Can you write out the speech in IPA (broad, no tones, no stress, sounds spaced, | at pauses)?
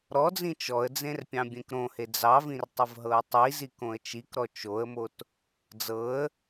ɾ ɔ d͡z ĩ t͡ʃ ɔ ə̯ d͡z ẽ r pʲ ɑ̃ bʲ ẽ k ɾ õ h e d͡z ɑ v ĩ r tˤ ə v ɦ ɤ ə̯ tˤ i z i k õ ə̯ t͡ʃ i k ɾ ɔ t͡ʃ o ə̯ m o t | d͡z ɤ ə̯